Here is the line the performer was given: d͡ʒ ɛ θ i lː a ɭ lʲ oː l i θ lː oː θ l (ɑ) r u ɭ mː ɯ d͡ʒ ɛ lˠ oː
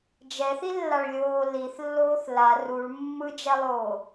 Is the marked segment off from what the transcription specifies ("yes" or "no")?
yes